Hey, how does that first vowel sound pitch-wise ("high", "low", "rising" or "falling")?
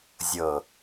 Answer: low